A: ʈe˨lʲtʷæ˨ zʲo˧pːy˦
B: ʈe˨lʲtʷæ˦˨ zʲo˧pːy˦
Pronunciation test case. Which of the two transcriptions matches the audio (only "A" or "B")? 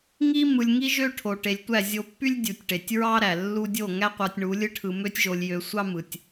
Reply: B